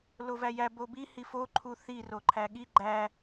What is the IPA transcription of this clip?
lovæjæ bobi hifoǃʰu θiro ǃʰæɠi ɡ͡ǃæ

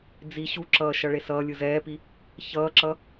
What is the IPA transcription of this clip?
d͡zi ɕuǁʌː ʃʌɭesʌːlʲɯ zɛːpi | çʌːǁʌ

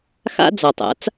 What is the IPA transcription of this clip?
xa̰˥ d͡zɔ˩tˤa̰˩˥t͡s

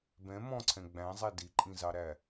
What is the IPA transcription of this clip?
bɛ̃ mɔ̃ǀʰɛ̃ ɡ͡bæ̃zˤɛ diǃʼĩzɑɾæ

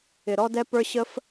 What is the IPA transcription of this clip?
ɪ˧ ɾɔ˦d ɛ˦pə˞˦ ɕə˦f

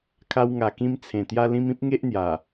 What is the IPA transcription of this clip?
kʰa˧wŋa˨˩kĩ˧m t͡sʰẽ˨˩ t̪ja˧lĩ˧mĩ˦p̚ ŋe˦ʔn̪ja˨˩

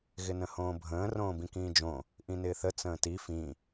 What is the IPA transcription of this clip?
ɣɪnə̃hõːbʱə̃ː rõːbĩkĩːd͡ʒõ | ʔĩnɪːθə t͡sə̃ːti fĩ

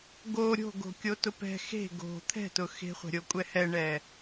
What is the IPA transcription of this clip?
ɡo ɾʲo̤ɡo̤kʲotʊ pɛ̤ xe̤ ɡo̤ t̪ʰɛ̤tʊ xe̤χʷɛ̤ɾʲokʷʼɛ hɛɳɛ

